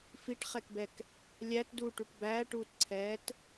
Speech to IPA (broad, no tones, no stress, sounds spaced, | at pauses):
f i ʈ χ ɛ k b ɛ k | lʲ æ t d uː ʈ u ʈ b æː ʈ uː t ǀʰ ɛː t